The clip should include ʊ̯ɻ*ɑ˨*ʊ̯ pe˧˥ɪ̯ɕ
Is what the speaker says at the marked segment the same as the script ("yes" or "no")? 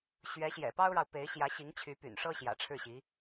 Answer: yes